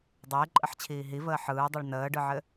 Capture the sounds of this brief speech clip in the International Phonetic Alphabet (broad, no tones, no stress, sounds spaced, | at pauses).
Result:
dˤ ɪː ǃʼ ə ħ t͡ɕʰ iː ɦ i v əː ħ ɯː dˤ ɯ ɭ n əː ɖ ɯ ʕ ɘ